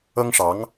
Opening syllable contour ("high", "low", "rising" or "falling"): high